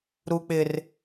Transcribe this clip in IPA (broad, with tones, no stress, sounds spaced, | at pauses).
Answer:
ɾ u˦ k͡p ɪ˦ r